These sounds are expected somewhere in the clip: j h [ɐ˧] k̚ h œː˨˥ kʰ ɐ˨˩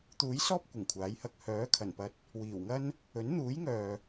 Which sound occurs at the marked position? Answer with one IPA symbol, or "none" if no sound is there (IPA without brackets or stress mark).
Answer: ɐ˧